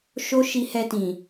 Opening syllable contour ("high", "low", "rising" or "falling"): high